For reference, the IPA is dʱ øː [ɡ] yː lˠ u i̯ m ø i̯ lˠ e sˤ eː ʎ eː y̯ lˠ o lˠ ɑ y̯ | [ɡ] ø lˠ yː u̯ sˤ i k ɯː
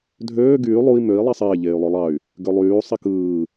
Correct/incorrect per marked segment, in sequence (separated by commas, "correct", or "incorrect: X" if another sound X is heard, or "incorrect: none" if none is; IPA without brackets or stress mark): correct, correct